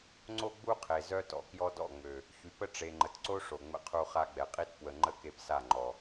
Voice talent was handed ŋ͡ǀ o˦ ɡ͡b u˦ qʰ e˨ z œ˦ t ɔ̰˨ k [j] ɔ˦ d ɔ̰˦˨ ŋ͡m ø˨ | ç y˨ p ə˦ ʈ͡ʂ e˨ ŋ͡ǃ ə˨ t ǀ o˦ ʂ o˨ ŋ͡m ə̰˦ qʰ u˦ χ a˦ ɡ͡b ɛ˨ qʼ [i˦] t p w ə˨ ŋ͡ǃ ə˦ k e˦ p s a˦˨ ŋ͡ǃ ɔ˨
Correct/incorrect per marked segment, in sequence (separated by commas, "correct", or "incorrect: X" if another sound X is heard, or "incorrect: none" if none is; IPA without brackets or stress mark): correct, correct